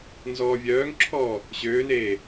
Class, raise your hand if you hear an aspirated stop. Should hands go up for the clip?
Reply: yes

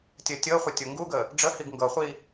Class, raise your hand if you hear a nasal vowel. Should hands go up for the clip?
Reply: no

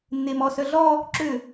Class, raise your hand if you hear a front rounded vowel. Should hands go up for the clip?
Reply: yes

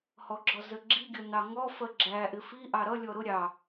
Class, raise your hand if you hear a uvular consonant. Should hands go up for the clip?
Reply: no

